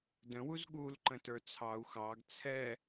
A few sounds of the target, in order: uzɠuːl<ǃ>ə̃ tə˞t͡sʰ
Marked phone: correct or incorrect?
correct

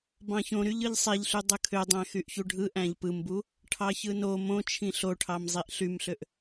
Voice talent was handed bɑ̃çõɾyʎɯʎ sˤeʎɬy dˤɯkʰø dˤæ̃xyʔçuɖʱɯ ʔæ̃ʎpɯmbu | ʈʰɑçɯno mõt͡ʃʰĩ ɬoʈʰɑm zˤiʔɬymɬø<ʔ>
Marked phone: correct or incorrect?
correct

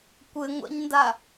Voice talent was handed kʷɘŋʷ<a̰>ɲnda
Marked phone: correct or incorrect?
correct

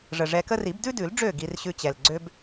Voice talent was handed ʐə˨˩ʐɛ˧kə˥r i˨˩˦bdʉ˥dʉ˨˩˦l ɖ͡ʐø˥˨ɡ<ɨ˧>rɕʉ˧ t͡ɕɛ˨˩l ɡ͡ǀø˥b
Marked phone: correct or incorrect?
incorrect: i˧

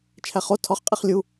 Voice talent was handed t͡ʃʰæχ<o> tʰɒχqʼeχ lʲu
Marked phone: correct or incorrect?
correct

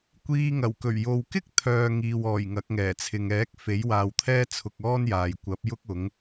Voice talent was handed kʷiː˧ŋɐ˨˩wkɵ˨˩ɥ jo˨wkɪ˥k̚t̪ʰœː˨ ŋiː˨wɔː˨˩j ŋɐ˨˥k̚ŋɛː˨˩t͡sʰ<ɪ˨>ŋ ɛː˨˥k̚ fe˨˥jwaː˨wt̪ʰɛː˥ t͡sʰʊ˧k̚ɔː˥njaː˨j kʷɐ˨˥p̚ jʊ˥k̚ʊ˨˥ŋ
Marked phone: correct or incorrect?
correct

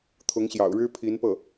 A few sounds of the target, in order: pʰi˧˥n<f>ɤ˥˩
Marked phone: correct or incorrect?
incorrect: p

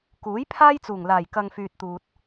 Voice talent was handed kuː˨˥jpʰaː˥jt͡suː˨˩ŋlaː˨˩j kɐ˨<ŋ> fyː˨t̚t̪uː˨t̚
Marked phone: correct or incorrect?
correct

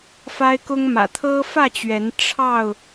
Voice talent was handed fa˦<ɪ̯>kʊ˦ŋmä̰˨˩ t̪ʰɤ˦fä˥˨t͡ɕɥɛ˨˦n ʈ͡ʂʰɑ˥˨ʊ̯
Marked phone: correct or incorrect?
correct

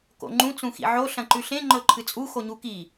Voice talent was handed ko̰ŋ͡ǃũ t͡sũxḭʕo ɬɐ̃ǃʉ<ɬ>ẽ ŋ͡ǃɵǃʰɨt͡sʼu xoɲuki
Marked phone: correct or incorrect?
correct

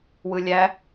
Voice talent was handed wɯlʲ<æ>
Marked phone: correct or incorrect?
correct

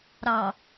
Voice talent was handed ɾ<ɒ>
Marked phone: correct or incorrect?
incorrect: ɑ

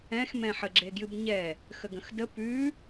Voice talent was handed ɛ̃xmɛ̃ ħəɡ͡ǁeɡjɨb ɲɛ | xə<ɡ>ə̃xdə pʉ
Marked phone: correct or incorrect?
correct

